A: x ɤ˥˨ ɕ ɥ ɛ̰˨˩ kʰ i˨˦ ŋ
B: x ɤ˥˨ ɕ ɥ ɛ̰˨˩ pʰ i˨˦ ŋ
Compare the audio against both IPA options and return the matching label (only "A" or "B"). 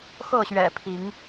B